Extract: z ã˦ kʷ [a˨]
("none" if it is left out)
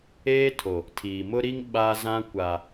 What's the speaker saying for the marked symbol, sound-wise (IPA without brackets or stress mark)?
a˨